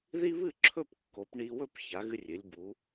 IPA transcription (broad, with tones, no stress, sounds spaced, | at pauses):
ð i˥ β ɨ˥˧ ǁʰ ɵ˥˧ p kː o˩˧ p ɳ i˧ w ɵ˥˧ p ç a˩˧ ɣ ɨ˧ rʲ ɨ˩˧ lʲ b u˩˧